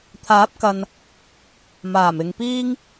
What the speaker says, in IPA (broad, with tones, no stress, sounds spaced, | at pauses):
t̪ʰ aː˨˥ p̚ k ɐ˨ n | m aː˨˩ m ɪ˨ ŋ p iː˥ ŋ